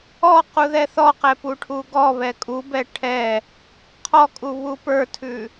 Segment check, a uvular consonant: present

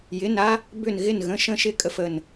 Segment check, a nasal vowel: present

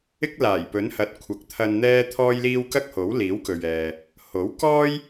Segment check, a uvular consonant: absent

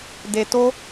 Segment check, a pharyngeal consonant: absent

